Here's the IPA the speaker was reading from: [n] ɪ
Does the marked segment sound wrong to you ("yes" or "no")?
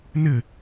no